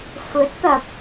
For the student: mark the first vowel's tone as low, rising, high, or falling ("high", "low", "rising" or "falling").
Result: rising